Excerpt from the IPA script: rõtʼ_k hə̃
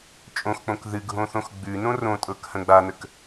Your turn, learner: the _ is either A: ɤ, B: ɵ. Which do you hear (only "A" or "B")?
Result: A